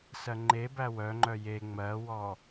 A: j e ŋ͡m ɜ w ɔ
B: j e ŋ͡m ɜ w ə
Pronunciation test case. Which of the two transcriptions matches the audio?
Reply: A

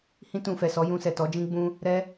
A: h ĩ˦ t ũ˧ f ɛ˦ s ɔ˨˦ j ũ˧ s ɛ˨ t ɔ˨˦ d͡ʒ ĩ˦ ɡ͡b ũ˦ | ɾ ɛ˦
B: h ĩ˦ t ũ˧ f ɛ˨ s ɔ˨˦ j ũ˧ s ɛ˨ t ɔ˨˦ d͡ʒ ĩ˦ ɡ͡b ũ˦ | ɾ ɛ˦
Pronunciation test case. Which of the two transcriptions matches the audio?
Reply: B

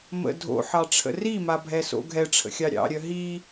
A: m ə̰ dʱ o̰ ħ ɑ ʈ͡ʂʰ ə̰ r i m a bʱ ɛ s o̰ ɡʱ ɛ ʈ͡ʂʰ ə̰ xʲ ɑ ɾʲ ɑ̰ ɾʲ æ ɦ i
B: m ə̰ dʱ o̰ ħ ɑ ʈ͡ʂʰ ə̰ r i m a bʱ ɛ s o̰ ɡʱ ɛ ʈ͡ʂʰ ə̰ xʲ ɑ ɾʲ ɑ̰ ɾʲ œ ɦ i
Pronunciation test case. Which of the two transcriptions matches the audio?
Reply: B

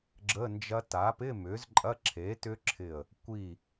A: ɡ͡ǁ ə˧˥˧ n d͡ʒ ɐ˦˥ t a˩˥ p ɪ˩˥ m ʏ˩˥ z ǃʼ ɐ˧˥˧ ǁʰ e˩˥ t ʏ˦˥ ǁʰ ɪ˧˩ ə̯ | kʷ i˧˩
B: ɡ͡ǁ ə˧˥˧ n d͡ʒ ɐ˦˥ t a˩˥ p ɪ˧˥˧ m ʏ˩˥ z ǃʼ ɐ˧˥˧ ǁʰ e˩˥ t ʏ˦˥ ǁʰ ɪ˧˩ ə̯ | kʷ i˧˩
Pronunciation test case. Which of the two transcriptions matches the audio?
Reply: B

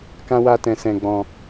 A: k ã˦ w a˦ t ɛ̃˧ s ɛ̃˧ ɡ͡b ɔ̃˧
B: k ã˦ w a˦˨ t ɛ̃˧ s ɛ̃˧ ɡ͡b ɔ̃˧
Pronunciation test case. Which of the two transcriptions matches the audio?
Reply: A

